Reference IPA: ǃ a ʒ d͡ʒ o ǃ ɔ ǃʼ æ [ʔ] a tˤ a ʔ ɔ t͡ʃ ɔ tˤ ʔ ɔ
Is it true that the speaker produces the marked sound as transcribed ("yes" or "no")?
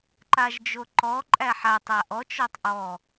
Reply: no